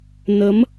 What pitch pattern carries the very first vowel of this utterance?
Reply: rising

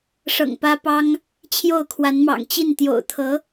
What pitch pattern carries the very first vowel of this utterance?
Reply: low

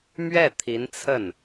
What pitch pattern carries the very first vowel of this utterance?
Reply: falling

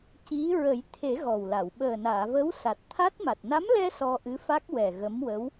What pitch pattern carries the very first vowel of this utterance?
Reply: rising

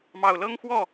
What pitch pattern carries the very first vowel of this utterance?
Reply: low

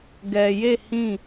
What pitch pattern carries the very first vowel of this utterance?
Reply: low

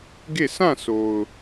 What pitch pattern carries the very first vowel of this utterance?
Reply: falling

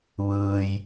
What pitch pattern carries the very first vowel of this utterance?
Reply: low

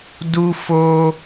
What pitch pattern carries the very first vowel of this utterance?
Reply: high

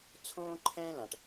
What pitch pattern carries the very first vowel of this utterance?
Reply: high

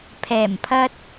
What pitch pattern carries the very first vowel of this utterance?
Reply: low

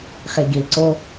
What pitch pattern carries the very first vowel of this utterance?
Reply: low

